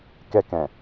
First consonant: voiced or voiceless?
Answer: voiceless